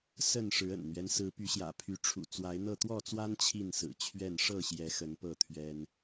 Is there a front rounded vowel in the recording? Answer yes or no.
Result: yes